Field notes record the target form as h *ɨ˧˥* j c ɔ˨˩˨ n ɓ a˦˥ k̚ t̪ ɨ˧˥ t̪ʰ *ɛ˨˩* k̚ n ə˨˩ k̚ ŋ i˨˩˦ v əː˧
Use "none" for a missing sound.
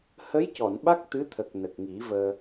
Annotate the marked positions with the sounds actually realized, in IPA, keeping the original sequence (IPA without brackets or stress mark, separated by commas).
ə˧˥, ə˨˩